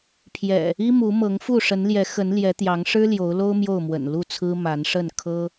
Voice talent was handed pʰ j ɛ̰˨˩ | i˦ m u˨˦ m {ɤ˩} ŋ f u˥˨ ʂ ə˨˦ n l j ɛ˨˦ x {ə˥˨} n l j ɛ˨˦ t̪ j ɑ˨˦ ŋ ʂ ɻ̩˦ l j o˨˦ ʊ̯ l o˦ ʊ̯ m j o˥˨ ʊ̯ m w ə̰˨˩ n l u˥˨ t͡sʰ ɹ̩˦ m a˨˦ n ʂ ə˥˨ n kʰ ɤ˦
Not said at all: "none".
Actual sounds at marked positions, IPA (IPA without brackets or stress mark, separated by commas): ɤ˨˦, ə˨˦